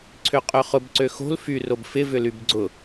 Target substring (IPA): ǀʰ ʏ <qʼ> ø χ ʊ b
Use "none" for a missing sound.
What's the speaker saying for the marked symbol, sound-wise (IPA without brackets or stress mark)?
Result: qʼ